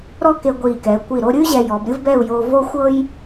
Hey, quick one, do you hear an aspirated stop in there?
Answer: no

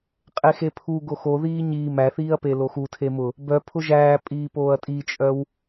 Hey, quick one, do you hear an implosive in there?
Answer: no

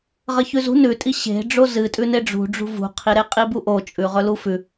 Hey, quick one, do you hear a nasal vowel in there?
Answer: no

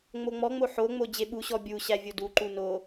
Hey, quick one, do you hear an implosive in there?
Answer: yes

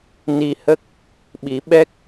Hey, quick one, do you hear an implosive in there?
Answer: yes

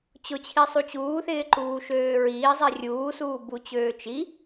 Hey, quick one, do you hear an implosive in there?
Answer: no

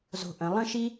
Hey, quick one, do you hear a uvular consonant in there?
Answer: no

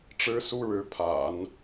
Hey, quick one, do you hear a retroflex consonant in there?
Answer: yes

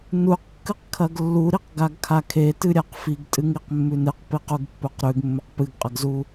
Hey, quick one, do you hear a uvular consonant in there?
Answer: yes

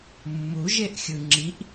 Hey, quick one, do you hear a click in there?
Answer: yes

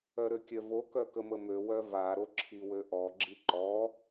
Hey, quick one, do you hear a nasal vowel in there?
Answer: no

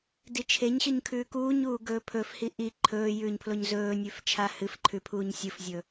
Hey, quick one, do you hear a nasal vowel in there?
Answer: no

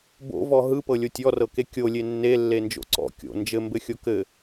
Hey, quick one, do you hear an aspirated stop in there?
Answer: no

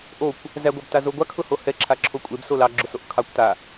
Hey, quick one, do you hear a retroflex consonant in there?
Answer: no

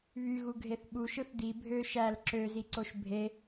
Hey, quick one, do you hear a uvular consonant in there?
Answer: no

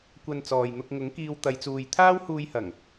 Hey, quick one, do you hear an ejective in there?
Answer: no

